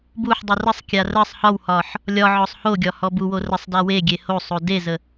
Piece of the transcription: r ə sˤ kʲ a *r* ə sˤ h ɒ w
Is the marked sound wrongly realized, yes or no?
no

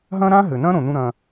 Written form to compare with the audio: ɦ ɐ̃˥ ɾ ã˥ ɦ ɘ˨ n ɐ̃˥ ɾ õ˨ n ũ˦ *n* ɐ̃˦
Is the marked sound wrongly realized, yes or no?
yes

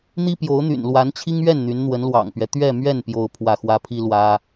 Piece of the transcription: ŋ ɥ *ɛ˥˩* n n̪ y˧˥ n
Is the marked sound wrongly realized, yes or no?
no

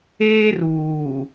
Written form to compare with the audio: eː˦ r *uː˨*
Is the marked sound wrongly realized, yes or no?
no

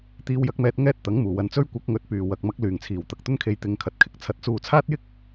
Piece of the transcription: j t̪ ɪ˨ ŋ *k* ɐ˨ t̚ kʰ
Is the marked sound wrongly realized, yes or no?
yes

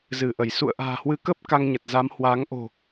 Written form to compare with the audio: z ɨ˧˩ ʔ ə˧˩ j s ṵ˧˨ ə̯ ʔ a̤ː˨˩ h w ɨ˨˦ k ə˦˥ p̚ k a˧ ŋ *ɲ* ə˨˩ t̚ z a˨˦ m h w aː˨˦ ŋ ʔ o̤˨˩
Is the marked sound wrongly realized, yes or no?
no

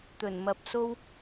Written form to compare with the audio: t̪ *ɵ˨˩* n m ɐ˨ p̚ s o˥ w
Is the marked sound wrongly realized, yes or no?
no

